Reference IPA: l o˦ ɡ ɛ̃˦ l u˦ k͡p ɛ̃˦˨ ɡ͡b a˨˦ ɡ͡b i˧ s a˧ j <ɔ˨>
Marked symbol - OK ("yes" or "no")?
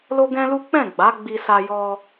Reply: no